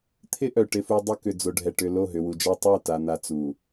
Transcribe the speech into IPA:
t̪ʰ ɪ˦ ʔ œ˨ ʈ ɪ˨ f u˨ dˤ ʊ˦ k ʏ˨ d͡z o˨ ɖʱ ɛ˨ ʈ ʏ˨ l o˦˨ ɦ ʏ˨ w u˨ d͡ʒ a˦ tˤ œ˦˨ t a˨ n̪ a˨ t͡s u˨

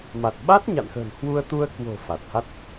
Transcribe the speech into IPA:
m a˨˩ t̚ ɓ a˦˥ t̚ ɲ a̰˧˨ n x ə̤˨˩ n h w u˧ ə̯ t̪ u˧ ə̯ k w o̤˨˩ f a˨˩ t̚ h a˦˥ t̚

